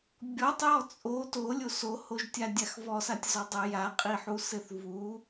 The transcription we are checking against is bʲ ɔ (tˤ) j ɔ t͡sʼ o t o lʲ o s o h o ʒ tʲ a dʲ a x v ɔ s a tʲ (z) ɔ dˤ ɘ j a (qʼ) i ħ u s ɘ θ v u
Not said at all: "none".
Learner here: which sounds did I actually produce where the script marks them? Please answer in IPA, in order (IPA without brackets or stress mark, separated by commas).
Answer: tˤ, z, qʼ